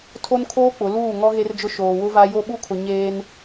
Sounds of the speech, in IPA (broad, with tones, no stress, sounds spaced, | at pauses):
tʰ o˦ n kʰ oː˦ k͡p ʊ˨˦ l uː˦˨ ŋ ɔ˦ ɣ e˦ r d͡ʒ ʊ˦ ʃ oː˨ w ʊ˦ v a˦ j o˦ ɓ u˦ kʰ ʊ˨ ɲ eː˦ n